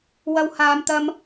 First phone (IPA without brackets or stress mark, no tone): w